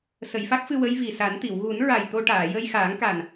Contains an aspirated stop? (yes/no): no